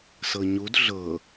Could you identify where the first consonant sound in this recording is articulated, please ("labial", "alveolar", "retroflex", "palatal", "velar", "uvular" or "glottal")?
alveolar